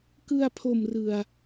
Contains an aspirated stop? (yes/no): yes